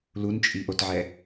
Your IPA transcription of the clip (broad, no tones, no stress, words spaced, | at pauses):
lunt͡ʃʼiʔotʕɛ